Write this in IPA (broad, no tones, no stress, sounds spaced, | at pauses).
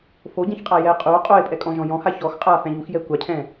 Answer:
f o ɟ ɛ̃ ç qʼ a j ɛ qʼ u o̯ qʼ o e̯ pʼ ɛ kʼ ɔ̃ ʒ ɔ̃ j ɔ̃ h a ç ɔ x qʼ a f ɛ̃ ʎ u x j ɛ kʷ a cʰ ɛ̃